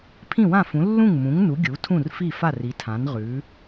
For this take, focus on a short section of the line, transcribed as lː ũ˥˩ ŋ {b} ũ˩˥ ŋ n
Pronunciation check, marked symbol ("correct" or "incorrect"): incorrect